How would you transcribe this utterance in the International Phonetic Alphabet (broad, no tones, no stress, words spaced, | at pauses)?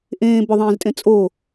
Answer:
ʔẽː bʏðˤẽːztʼẽ t͡sʼo